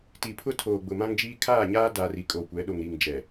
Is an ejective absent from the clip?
no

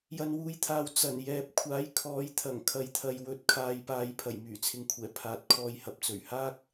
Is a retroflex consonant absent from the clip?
yes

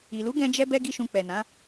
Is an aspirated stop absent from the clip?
yes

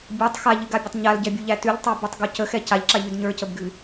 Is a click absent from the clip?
no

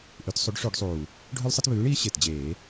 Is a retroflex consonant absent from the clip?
no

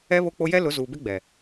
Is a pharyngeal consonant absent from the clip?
yes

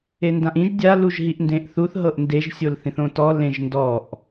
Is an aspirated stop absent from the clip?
yes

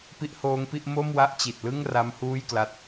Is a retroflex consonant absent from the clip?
yes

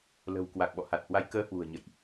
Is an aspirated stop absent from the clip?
yes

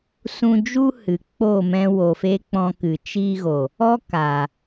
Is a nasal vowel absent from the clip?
no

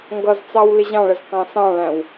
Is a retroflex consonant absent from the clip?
no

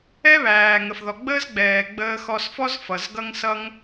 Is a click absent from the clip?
yes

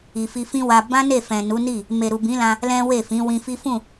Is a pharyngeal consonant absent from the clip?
yes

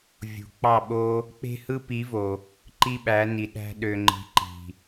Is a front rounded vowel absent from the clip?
no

